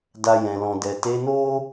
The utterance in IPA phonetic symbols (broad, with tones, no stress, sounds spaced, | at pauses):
d a˧ j ɛ̃˨ l ɔ̃˨ d ɛ˨ t e˨˦ n o˦